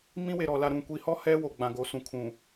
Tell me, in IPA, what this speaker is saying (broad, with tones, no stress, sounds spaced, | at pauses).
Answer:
m ĩ˦ w e˨ ɾ ɔ˨ l a˨ ɾ ũ˨ kʷ i˨ h ɔ˦ h ɛ˦ w o˨ ɡ͡b ã˨ ɡ o˨˦ s ũ˨ kʰ ũ˨